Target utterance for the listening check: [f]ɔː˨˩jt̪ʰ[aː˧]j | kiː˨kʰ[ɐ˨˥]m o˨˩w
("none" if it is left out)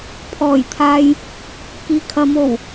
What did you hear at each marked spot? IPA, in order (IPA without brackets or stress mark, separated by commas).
pʰ, aː˧, ɐ˨˧